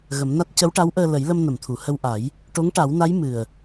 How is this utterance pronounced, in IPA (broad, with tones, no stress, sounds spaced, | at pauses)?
ɣ ə˨˩˦ m n a˦˥ t̚ c ə˧˥ w ʈ a˧˥ w ʔ əː˧ l ə˨˩˦ j l ə˧ m n ə˨˩˨ m t̪ʰ u˨˩˨ h ə˧ w ʔ a˨˩˦ j | ʈ o˧˥ ŋ ʈ a˨˩˦ w n a˧˥ j m ɨ˨˩ ə̯